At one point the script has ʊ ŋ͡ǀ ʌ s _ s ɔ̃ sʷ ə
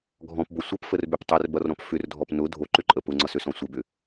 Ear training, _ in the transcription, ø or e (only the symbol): ø